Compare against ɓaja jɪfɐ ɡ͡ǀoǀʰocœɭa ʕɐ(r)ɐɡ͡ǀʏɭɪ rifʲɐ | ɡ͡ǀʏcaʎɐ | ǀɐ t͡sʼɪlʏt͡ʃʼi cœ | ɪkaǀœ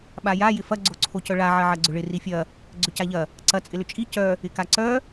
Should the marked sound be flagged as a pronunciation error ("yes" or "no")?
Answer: yes